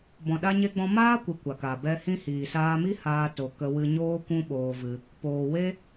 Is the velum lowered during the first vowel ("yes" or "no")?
yes